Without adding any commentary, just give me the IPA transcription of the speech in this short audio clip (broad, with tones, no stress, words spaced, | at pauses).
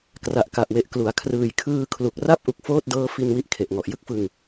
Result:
kra˨˩ʔka˨˩ʔwe˨˩ʔklu˩˦a̯ kʰrɯː˨˩jkʰɯː˧kʰlu˨˩k̚ra˥˩p̚ ʔu˨˩k̚foː˥˩t̚dɤː˦˥ fi˧n wi˥˩ʔkʰe˨˩ʔŋɔ˨˩ʔ jɯ˦˥k̚fɯ˧ŋ